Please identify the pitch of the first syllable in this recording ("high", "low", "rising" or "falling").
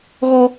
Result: high